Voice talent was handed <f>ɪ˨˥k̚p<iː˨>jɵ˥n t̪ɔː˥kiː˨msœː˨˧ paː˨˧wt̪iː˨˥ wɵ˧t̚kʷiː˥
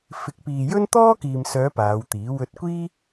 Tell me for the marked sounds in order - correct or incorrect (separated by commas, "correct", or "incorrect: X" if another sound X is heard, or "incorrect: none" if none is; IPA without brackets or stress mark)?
correct, correct